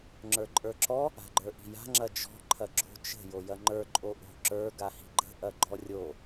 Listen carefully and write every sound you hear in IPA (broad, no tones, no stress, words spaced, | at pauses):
ŋ͡ǁə˞ǃʼə˞ǁɔ | a̤ɡ͡ǃə˞ʔi̤ja̤ ŋ͡ǁɐd͡ʒɔ̤ ǃʰɐɡ͡ǁo̤ t͡ʃə̤ jojɐŋ͡ǃə˞ ǃʼoʔo̤ ǁə˞ ɡahi̤ɡ͡ǃə̤ ʔɐɡ͡ǃɔrʲo